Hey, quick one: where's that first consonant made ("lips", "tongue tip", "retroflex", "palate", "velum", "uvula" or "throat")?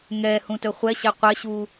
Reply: velum